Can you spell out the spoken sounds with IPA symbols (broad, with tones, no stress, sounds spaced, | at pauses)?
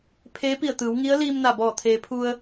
pʰ eː˧˥ p i˧˩ ə̯ t̪ ɯː˩˧ w ŋ i˧˥ ə̯ l iː˧ m n a˧˩ b ɔː˧˩ t̪ʰ eː˩˧ pʰ u˧ ə̯